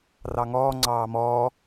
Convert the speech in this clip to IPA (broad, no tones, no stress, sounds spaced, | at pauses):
r ɑ ŋ ɔː ŋ͡ǀ ɑː m ɔː